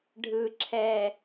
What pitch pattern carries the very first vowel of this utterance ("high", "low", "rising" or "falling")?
low